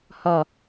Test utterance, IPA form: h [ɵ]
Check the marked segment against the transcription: incorrect: ɔ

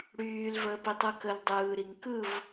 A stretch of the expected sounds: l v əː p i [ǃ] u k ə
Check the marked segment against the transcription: incorrect: tˤ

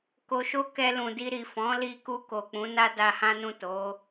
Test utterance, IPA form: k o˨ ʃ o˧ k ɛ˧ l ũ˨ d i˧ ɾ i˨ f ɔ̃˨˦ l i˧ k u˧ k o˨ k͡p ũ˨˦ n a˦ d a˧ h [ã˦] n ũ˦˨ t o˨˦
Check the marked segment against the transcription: correct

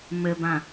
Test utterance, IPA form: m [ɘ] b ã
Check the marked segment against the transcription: correct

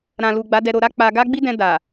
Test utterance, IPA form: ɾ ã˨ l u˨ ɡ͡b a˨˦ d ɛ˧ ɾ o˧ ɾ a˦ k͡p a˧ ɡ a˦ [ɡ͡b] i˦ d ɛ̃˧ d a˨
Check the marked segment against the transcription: correct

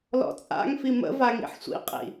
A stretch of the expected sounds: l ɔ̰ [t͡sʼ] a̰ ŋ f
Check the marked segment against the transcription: correct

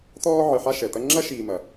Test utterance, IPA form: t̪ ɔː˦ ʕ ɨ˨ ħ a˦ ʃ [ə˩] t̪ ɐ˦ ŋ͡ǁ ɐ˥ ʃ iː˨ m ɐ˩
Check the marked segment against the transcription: incorrect: ɛ˩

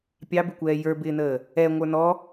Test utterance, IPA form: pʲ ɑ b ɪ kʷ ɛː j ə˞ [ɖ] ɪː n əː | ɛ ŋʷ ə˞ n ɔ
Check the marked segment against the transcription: incorrect: b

